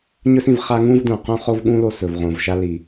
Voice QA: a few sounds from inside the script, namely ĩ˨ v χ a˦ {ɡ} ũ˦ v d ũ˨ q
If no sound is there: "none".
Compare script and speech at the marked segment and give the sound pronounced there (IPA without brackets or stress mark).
ŋ